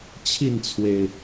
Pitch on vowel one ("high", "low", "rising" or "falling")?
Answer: falling